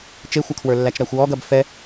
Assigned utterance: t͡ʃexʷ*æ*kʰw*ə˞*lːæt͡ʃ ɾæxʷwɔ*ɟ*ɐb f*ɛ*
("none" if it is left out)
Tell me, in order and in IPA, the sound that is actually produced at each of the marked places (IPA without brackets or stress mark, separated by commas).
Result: ɐ, ə˞, ɡ, ɛ